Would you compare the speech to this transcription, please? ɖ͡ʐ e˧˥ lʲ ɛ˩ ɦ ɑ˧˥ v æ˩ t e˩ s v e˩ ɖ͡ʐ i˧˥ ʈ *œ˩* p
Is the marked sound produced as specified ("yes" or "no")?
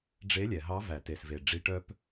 no